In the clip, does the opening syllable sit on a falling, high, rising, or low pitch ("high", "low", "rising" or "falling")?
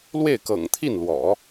falling